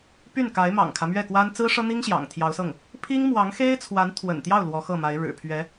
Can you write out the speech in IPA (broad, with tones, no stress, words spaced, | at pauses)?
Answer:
py˥˩nka˧˥ɪ̯ mɑ̰˨˩ŋkʰä˦mɥɛ˥˩kwa˥n t͡sɹ̩˥ʂɤ˥n̪i˥ŋ ɕjɑ̰˨˩ŋt̪ʰjɑ˧˥ʊ̯sɤ˥˩ŋ | pʰi˥ŋmwɑ˧˥ŋxe˥ɪ̯t͡sʰwa˧˥n t̪ʰwə̰˨˩nt̪jɑ˥˩ʊ̯ lwɔ˧˥xɤ˥˩ma˧˥ɪ̯ ɻɻ̩˨˩pʰɥɛ˧˥